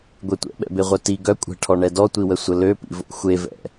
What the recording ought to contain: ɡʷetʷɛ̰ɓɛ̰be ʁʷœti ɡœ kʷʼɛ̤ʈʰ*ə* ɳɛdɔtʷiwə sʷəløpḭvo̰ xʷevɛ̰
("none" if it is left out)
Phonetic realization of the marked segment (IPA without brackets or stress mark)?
ɔ